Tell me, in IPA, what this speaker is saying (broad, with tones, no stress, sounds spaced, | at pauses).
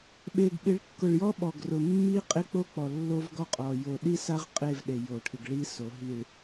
ɓ e˨ ɡ ɓ ɪ˨˦ ɭ kː ʊ˨ ɭ j ɔ˦ ɓ ɔ˨ ɡ r ʊ˨ mː i˦ qʼ ɪ˦ k͡p o˦ k͡p ɔ˨ lː o˦ v ɡ ɔ˦ qʼ ɔ˨ j o˨ ɗ i˦ s a˦ ʁ qʼ e˦˨ v ɗ e˨ j o˨ ʈʰ ɪ˨ ɡ ɭ i˦ s o˨˦ ɦ i˨ ɭ